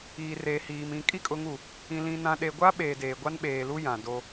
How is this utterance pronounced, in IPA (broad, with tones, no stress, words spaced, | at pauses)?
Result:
iː˨reː˨hiː˨m ĩ˨ kʼi˦kʼʊ˨˦ŋu˨ | ĩ˨lĩ˨nã˨ ɗe˨ɡʷa˦ ɓeː˨deː˨ ɡʷa˦nɓeː˨lu˦ jã˨do˦